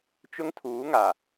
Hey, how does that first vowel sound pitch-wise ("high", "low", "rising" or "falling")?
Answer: high